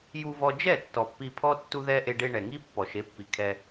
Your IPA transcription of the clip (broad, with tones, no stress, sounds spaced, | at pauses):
j u˧ v ɔ˧ d͡ʒ ɛ˦˨ tː ɔ˨ pː i˧ pʰ ɔ˦ tː u˧ ð ɛ˧ ʔ e˧ ɖ e˧ ɳ ɛ˨ ŋ i˦ pː ɔ˨ ʃ e˨˦ pː i˨ kʰ ɛ˧